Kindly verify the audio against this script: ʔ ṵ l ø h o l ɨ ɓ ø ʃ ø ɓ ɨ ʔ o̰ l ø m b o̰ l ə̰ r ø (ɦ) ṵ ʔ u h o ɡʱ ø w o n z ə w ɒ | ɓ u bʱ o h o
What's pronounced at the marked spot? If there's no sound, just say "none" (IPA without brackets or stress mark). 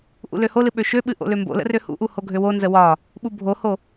h